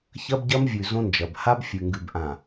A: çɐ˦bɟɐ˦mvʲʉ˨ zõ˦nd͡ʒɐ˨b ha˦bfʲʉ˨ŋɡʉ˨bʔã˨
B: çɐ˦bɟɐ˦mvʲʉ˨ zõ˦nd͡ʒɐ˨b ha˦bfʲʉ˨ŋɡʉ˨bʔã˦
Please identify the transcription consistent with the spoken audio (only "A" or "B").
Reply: A